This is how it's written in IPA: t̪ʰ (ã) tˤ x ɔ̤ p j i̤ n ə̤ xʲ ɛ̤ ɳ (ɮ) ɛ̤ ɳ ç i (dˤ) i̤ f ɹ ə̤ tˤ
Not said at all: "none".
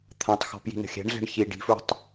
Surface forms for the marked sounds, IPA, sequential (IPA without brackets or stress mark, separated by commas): ã, ɮ, ɖ